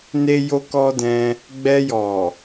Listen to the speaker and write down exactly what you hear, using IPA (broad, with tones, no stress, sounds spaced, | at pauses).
n e˦ j o˦ k ɔ˦ d ɛ̃˧ | ɡ͡b ɛ˧ j ɔ˨